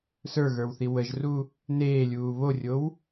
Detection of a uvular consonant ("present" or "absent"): absent